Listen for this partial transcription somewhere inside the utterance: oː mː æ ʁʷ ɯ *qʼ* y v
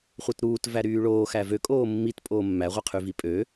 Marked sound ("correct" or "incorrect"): incorrect